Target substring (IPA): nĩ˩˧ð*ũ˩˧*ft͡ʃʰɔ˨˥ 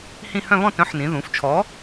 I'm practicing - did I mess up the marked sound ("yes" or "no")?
no